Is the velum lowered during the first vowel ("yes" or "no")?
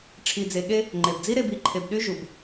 no